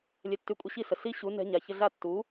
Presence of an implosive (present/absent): absent